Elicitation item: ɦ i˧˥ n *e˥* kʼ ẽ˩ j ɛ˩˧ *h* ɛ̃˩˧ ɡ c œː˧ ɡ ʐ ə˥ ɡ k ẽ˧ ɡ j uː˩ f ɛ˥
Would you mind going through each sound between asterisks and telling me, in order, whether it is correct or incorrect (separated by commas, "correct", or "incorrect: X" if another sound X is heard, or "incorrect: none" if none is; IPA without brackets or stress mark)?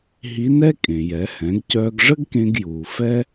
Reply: incorrect: ɛ˥, correct